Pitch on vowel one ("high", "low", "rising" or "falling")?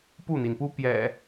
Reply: falling